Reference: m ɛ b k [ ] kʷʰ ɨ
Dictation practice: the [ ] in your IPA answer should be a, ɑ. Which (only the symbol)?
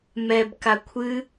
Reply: a